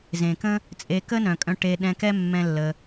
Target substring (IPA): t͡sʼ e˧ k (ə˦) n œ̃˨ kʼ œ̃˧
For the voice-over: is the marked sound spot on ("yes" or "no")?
yes